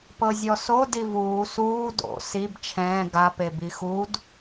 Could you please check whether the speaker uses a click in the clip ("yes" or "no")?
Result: no